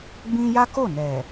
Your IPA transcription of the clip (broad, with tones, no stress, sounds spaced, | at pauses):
ɡ͡b ĩ˦ j a˦ k o˦˨ n ɛ˨